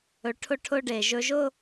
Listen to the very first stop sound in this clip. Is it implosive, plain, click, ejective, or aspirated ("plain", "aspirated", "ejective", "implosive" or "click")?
aspirated